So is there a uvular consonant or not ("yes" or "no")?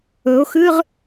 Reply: yes